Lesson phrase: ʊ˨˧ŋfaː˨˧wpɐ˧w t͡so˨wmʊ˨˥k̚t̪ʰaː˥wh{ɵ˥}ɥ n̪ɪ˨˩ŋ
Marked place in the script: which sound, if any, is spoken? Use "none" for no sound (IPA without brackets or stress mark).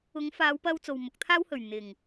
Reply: ɵ˨˩